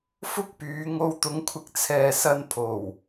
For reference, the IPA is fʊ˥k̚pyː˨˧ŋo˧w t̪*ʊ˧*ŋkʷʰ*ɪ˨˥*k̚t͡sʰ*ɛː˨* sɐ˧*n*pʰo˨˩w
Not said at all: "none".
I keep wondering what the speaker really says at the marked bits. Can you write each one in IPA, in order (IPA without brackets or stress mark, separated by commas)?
ʊ˨˧, ɪ˨, ɛː˨, n